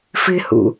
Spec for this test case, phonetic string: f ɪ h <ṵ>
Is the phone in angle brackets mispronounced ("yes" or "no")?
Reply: no